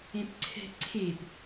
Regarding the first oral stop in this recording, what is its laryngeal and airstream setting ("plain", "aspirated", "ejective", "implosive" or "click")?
plain